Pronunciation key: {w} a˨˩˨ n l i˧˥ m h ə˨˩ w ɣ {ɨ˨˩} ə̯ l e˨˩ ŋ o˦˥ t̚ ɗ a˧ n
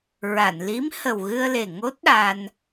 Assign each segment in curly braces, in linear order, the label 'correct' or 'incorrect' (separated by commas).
incorrect, incorrect